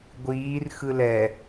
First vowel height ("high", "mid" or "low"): high